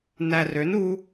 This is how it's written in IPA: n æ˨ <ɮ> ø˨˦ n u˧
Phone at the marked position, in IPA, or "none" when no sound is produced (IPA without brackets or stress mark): r